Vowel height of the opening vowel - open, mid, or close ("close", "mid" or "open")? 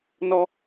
mid